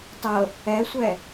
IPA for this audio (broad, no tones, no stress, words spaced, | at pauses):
tˤɤ | ɛsʷɛ